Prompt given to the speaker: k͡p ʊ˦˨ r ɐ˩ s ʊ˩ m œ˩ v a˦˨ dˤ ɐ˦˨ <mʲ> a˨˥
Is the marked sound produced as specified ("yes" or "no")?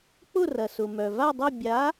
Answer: no